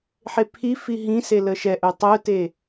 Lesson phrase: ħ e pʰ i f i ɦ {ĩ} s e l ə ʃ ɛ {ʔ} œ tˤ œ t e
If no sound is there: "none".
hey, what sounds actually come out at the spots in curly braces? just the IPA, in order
ĩ, ʔ

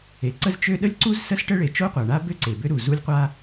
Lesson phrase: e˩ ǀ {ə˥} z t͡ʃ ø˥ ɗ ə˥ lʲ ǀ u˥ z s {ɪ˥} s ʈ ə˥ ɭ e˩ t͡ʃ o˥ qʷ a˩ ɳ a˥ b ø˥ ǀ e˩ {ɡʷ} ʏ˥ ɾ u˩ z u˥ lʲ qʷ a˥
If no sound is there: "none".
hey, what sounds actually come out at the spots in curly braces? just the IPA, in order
ə˥, ə˥, b

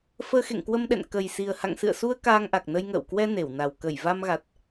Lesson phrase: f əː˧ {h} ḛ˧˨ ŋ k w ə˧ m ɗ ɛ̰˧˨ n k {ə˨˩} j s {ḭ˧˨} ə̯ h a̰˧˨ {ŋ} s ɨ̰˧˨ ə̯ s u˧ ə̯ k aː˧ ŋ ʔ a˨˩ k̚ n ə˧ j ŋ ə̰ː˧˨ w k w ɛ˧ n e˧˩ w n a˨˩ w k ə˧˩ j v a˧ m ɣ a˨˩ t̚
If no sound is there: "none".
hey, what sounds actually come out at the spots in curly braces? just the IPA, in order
x, ə˨˩, i˨˩, ŋ

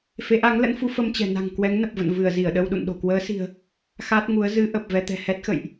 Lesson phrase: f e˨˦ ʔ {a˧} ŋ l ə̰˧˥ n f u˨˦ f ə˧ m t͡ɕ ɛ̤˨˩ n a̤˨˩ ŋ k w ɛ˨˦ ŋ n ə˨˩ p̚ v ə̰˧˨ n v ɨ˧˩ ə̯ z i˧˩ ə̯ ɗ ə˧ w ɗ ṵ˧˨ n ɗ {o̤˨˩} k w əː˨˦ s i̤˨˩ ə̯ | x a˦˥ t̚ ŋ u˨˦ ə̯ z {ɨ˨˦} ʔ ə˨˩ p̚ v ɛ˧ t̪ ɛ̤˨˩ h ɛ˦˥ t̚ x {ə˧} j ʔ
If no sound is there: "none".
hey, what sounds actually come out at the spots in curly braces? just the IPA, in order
a˨˦, o̤˨˩, ɨ˨˦, ə̰˧˨

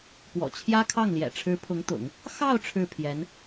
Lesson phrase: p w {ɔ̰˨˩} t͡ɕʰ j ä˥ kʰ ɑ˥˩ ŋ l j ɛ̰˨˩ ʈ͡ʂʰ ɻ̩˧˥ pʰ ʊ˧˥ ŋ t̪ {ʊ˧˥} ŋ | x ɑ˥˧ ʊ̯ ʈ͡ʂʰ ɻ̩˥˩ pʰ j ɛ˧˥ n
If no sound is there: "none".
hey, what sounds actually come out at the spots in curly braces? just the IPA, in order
ɔ̰˨˩, ʊ̰˨˩˦

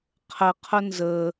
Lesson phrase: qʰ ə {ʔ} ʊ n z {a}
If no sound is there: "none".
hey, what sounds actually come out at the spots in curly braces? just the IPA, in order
qʰ, ə

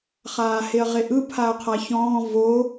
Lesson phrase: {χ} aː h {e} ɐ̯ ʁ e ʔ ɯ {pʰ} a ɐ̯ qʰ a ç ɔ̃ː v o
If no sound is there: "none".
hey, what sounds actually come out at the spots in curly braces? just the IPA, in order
χ, e, pʰ

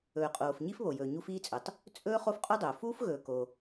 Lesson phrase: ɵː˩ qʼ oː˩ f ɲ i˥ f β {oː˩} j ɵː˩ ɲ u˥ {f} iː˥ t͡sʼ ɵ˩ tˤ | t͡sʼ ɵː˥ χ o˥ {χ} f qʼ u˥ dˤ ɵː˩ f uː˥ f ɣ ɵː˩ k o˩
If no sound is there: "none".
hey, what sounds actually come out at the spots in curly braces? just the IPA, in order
o˩, f, none

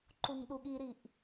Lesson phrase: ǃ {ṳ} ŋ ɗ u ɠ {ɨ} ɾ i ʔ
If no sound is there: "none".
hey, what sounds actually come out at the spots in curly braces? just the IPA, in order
u, i

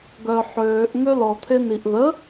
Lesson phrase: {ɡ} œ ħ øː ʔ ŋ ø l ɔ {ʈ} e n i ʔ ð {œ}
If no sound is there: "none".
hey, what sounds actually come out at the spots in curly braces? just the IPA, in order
ɡ, t̪ʰ, ə

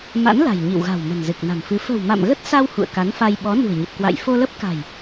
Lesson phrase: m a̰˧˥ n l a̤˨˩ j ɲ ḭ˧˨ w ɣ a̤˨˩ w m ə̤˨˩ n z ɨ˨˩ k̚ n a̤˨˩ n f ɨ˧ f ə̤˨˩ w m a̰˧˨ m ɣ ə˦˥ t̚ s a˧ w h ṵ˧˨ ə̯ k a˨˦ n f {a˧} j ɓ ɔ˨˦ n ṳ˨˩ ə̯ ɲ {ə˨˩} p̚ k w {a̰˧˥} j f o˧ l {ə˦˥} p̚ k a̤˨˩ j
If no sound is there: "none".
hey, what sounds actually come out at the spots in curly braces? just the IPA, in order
a˧, ə˨˩, a̰˧˨, ə˦˥

